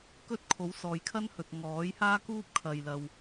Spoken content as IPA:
k ɵ˥ t̚ kʰ o˨˥ w s ɔː˨ j kʰ ɐ˥ n h ɵ˨ t̚ ŋ ɔː˨˥ j h aː˥ k uː˥ p̚ kʰ ɐ˨ j l ɐ˨ w

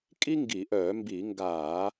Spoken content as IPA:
kʼ i˥ ŋ ɡ i˧˩˧ ʔ œː˧˩˧ m b i˧˩˧ ŋ ɡ aː˧˩˧

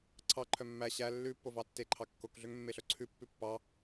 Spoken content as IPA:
ǀʰ ɑ ǃʰ œ mː æ ɕ æ lː ʉ pː o v ɑ tː e ǃʰ ɑ kː o k ɮ ø ŋ mː e ɬ œ ǀʰ ʉ pː ʉ pː ɑ

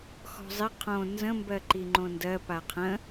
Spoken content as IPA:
x ɔ̤ zˤ ɪ qʰ õ n z ə̃ m b ɜ ǃ i ŋ͡ǃ õ n d ɜ p a qʰ ə̃

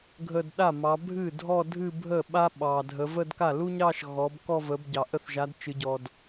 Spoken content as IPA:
ɡʱ ə˥˧ d ɗ a˥˩ m ɑ˨˦ bʱ ɨ˥˩ dʱ ɔ˥˧ dʱ ɨ˥˧ bʱ ə˥˩ ɓ a˥ ɓ ɑ˨ dʱ ə˨˦ v ə˥˧ d k a˥˩ l u˥ ɲ ɑ˥˧ ʃ ɣ ɔ˨˦ b k ɔ˥˧ v ə˨˦ b ɟ ɑ˨ ʔ ə˥˩ θ ʒ a˨˦ d t͡ʃ ɨ˨˦ ɟ ɔ˨ d

